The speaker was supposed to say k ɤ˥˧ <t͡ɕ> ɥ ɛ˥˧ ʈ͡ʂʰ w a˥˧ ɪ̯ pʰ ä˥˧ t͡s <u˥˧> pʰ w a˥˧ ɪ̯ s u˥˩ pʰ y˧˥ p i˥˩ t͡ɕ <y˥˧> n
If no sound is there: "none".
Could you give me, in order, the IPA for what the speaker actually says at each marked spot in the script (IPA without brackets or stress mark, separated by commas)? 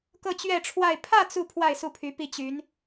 t͡ɕ, u˥˧, y˧˥